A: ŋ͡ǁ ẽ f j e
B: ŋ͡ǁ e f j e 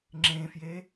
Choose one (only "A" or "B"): A